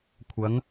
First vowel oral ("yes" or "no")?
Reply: yes